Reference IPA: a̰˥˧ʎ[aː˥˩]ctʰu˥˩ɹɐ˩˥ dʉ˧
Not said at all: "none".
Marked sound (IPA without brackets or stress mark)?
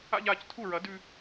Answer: aː˥˩